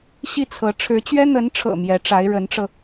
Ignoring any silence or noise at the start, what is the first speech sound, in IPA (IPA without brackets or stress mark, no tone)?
ɕ